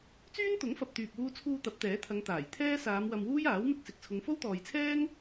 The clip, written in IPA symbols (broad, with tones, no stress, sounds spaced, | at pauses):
t͡s yː˥ n t̪ ʊ˨˥ ŋ f ɐ˨ p̚ t̪ yː˨ p̚ w uː˧ t͡sʰ uː˧ t̪ ɐ˨˥ p̚ t̪ ɛː˨˥ t̪ʰ ɐ˨˧ ŋ t̪ aː˨˩ j t̪ʰ ɛː˥ s aː˨˧ m w ɐ˧ m w uː˥ j aː˨˥ w m ɪ˧ k̚ s ɪ˨ k̚ t͡sʰ ʊ˨˧ ŋ f o˥ w t̪ ɔː˨ j t͡sʰ ɛː˥ ŋ